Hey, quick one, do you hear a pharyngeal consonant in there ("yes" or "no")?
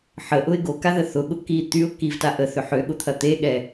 yes